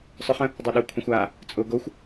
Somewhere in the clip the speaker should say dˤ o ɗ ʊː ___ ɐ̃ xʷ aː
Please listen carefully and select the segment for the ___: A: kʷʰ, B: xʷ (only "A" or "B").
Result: A